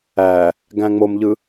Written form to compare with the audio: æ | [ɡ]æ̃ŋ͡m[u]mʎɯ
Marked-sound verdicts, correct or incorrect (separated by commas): correct, incorrect